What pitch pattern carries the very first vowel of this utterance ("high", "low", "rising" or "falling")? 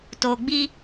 low